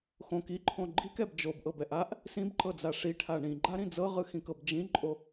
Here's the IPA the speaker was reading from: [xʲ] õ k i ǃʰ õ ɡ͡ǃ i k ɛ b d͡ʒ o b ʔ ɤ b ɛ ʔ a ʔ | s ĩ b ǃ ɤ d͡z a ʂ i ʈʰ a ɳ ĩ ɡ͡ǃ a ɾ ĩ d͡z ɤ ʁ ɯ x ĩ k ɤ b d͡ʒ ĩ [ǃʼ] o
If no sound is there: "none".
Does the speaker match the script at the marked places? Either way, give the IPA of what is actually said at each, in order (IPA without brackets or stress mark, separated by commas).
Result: x, ǃʼ